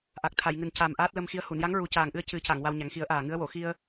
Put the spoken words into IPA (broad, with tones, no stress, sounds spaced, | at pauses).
ʔ a˨˩ k̚ t̪ʰ a˨˩˨ j ŋ ɨ˨˩ n c a˨˩ m ʔ aː˦˥ t̚ l ə˧ m x i˧˥ ə̯ h u˨˩˨ n j a˧˥ ŋ ɹ u˨˩ c aː˨˩ ŋ ʔ ɨ˧ ə̯ c ɨ˨˩˦ c a˨˩˨ ŋ w a˧ w ɲ a˨˩˦ ŋ x i˨˩˦ ə̯ ʔ aː˨˩ ŋ ɨ˧˥ ə̯ w o˨˩˨ x i˧ ə̯